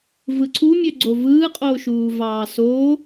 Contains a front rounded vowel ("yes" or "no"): yes